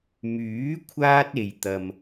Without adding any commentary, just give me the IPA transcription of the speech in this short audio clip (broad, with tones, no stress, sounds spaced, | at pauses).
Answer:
m yː˨˥ kʷʰ aː˥ t̚ e˨ j t̪ ɐ˨ m